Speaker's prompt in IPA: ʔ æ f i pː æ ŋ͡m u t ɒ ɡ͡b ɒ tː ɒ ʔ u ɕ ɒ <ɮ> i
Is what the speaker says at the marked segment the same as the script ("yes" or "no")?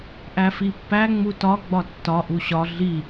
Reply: yes